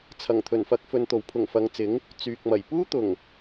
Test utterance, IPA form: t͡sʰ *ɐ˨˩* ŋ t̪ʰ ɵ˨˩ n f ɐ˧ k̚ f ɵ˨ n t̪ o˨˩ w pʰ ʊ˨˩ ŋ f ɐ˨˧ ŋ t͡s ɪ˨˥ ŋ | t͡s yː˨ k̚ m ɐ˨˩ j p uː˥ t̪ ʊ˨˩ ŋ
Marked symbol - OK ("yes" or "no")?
yes